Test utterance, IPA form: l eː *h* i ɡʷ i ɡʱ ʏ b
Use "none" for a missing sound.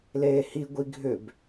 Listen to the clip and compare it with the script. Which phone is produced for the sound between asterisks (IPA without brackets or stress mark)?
h